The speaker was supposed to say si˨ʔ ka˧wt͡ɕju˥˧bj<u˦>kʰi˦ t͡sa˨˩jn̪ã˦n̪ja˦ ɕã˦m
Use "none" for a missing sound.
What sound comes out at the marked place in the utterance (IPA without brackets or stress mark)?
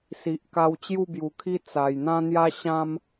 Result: u˨˩